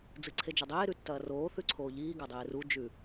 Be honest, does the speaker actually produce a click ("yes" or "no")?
yes